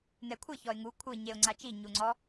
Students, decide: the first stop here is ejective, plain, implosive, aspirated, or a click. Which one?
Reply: aspirated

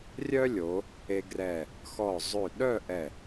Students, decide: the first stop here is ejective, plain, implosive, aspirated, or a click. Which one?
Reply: plain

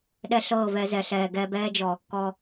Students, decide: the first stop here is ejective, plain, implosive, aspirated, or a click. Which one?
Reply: implosive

